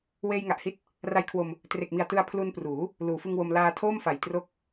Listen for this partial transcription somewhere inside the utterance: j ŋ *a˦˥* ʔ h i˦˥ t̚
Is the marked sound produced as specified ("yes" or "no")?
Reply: no